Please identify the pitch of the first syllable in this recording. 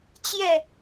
falling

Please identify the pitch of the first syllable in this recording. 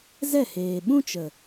falling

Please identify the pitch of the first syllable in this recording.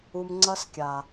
low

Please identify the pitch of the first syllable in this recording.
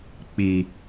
low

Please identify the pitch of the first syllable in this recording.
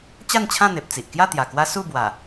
falling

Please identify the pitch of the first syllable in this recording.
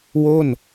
falling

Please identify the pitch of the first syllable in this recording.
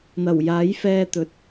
low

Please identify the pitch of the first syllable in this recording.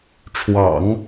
low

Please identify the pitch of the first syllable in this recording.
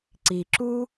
low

